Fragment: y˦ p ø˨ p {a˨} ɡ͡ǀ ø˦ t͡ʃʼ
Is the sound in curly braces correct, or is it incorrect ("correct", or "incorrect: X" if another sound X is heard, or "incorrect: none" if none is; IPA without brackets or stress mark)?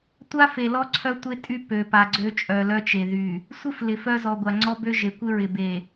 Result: correct